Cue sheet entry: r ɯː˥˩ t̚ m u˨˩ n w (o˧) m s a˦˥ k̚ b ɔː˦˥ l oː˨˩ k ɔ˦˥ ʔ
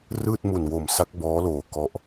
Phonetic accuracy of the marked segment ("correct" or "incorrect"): incorrect